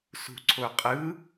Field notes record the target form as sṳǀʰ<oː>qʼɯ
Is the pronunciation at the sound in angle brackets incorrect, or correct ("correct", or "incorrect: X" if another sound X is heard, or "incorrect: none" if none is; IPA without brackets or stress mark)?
incorrect: o